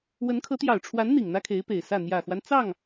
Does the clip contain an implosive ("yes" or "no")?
no